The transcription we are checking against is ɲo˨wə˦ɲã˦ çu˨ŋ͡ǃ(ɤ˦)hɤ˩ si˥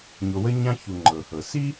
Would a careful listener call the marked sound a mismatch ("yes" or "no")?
yes